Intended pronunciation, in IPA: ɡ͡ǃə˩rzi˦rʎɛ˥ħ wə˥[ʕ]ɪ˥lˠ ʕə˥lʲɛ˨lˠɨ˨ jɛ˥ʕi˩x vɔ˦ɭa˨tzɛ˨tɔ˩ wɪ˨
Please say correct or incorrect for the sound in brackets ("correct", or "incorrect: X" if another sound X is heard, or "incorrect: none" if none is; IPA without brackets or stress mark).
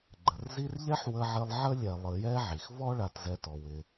correct